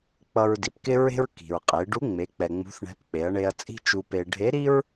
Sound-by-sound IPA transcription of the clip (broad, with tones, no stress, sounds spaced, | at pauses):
k͡p ʌ˧ ɹ d i˩ p k ɪ˥ ɹ e̤˥ ɹ k i̤˩ ɹ qʼ e˩˧ ɖ u˧˥ ŋ͡m e˩˧ k͡p ɛ˩ ŋ͡m ṳ˧˥ θ ɳ ɛ̤˧˥ p k͡p e˩˧ ɐ̯ ɳ e˧ ɐ̯ t͡sʼ i̤˥ t͡ʃ u˧ p e˧ ɖʱ e˧˥ ɾ i˥ ɹ